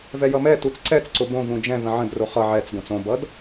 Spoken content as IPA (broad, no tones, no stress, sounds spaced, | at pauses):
v ɛ j ʌ m ɛ t u t͡s ǀ ɛ t͡s ǀ ʊ b õ v ũ d͡ʒ ɛ̃ v ə̃ ʕ ə̃ d r o χ ʌ ʕ ɛ t͡s ɡ õ t͡s õ b ʌ d